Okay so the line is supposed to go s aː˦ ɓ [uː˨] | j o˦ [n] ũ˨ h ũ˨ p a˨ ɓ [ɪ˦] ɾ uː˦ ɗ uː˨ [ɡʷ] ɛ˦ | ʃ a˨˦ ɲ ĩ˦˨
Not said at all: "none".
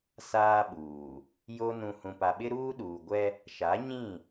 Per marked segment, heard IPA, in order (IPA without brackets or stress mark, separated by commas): uː˨, n, ɪ˦, ɡʷ